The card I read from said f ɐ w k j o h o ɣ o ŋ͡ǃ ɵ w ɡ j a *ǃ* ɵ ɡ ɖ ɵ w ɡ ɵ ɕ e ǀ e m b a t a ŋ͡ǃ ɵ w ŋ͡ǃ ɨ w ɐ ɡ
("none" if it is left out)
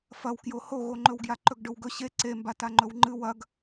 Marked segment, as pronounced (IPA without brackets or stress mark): ǃ